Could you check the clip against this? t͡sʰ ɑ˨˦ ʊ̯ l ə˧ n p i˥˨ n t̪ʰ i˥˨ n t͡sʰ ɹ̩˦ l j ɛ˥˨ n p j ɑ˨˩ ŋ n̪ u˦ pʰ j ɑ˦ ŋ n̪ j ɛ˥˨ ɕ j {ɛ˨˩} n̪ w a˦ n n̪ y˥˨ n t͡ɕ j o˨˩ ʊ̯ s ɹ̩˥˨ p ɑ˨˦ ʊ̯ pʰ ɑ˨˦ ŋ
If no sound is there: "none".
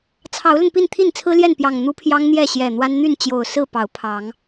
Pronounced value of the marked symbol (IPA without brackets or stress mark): ɛ˨˩